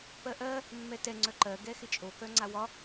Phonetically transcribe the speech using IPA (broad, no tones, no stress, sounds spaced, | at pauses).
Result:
p ɜ ʔ ɜ | mː ɛ t ɛ ŋ͡ǀ œ ǃ ɜ ɡ ɛ x ɪ t͡ʃʼ o k œ ŋ͡ǀ a w ɒ